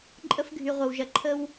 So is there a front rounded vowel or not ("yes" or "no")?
yes